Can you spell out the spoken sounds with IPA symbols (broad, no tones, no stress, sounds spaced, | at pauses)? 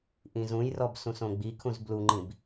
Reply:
ʔ ĩ z ũ j r ɔ b s ũ s õ ɡ͡b i kʰ ũ z b l u ŋ͡ǃ ĩ b